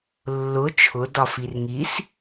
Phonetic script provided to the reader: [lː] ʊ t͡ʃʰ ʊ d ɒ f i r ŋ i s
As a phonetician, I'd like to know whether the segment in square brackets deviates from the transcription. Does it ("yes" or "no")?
no